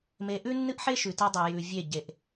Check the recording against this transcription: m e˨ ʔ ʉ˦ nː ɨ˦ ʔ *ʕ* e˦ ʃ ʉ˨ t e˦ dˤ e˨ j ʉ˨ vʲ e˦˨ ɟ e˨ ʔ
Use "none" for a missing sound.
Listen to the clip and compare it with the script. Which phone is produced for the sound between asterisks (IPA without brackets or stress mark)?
ħ